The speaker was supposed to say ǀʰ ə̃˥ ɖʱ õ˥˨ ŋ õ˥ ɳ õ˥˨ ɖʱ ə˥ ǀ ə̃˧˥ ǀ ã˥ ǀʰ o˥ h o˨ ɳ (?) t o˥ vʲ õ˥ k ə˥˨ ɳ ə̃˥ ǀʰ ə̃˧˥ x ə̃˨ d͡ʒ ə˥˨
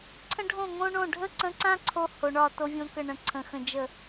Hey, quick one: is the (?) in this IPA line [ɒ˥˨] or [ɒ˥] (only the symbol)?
ɒ˥˨